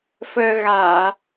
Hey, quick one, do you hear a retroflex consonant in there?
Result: no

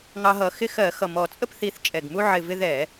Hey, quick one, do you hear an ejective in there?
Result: yes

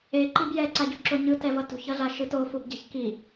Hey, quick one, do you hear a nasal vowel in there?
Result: no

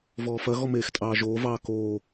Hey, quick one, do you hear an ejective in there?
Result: yes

